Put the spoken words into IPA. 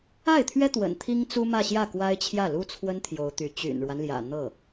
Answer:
a˥˩ɪ̯t̪ʰɥɛ˥ t̪wə̰˨˩nt̪ʰi˥ŋ t͡su˥mä˥˧ɕjä˥˩ kwa˥ɪ̯t͡ɕʰjä˥˩lu˥t͡sʰwə˥n t̪ʰjo˧˥ʊ̯t̪y˧˥ t͡ɕy̰˨˩nɻwa˦nljä̰˨˩ n̪ɤ˥˩

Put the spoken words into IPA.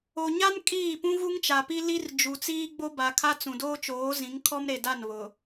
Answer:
o˨ɲa˦n kʼiː˦˨pũ˦ ɣu˦ŋt͡ʃa˨pi˦li˦r d͡ʒu˨t͡siː˦ ɡ͡bo˦ba˨kʰa˦ t͡sũ˨doː˦t͡ʃoː˨˦zĩ˨˦ŋ kʰɔ˦mɾe˨da˦˨n βʊ˨

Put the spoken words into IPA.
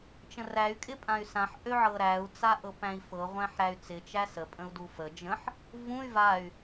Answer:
t͡ʃə̃ræy̯ kʼɪpʼãy̯sãħ ʔøʕɤɾæu̯ t͡saʔɤpæ̃i̯fɤ ʁʷæ̃ħɾæy̯t͡sɪ t͡ʃæsə pʼə̃u̯dufə d͡ʒə̃ħ | vũy̯ vay̯

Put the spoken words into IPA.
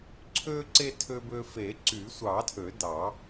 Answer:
ǀʰøː˧ǀe˧ tʰø˧bø˧fe˨˩˦ ǀy˨˩˦sʷɑ˨˩˦tʰø˨˩˦ dɑ˨˩˦

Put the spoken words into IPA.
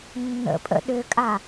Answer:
nːə̰ pʼə̰ ɗʏkʼa

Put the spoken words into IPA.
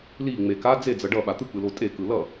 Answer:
li ŋ͡meka d͡zed͡zʌ ɖʌ ɓat̪ɯk͡pɯlo tʼekɯ lʌ

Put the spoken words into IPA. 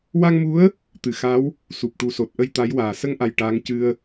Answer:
wa˧ŋmu˧˥ə̯ | t̪ɨ˨˩˨xa˧˥w | su˨˩p̚ʈu˨˩so˨˩t̚ʔə˧j t̪a˧˥jwaː˨˩ sə˧ŋʔa˨˩j ʈaː˧˥ŋcɨ˧ə̯

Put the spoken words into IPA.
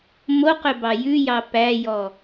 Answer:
moqøbɑ jʉjɑ pæjɔ

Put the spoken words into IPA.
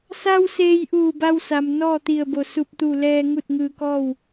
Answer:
sa˧w seː˧jʔuː˧˩ba˧wsa˩m nɔː˥˨t̪i˧˩ə̯bo˧˩ su˧˩p̚t̪u˧˩lɛː˧ ŋu˥˨t̚ŋɯː˧kɔː˥˨w

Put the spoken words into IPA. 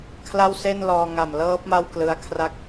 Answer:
kʰla˥˩wse˥˩nlɔː˧ ŋa˨˩mlɤː˦˥p̚ ma˥˩wklɯ˦˥a̯kʰra˥˩k̚

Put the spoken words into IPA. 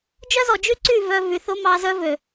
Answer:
d͡ʒœ˦zɔ˨d͡ʒy˦ǀy˦˨ vœ˦ vy˨θo˦mɑ˧ zœ˦vø˨

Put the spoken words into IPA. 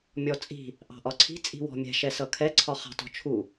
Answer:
mʲɔt͡sʼi̤ | ʔɑ̤ʔɒǀʰi̤ t͡sʼi̤wɔ̤mʲɛ̤ ʃɛsʌkʰɛ ǀʰɒχɑ̤tɔ̤t͡ʃʰu

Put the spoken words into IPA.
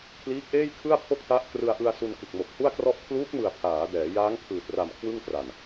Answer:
kʰliː˦˥k̚ʔeː˥˩jkʰɯ˥˩a̯ pʰo˥˩k̚ta˦˥ʔ krɯ˧a̯ʔɯ˧a̯ su˧nkɯ˨˩k̚ mo˨˩k̚hu˥˩a̯krɔ˥˩ʔ kʰluː˦˥k̚mɯ˨˩a̯ pʰaː˩˦dɛː˩˦ jaː˦˥ŋpʰɯː˨˩t̚ra˨˩m kʰwɯ˥˩ŋtra˨˩n

